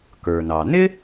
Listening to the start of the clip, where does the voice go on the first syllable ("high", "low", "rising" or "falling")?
low